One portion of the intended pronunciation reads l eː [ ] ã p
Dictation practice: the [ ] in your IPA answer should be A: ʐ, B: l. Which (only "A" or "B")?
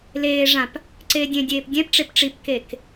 A